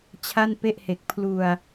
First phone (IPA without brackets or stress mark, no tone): t͡ɕʰ